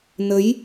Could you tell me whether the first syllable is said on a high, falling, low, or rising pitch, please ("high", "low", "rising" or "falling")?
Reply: rising